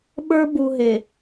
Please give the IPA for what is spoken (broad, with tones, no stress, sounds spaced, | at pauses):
ɓ ə˞˦ b u˨ ɦ e˨